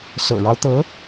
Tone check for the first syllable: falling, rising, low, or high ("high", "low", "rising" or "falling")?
low